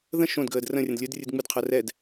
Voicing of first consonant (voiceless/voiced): voiced